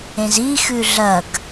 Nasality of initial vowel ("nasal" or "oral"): nasal